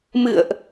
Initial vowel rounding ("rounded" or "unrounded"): unrounded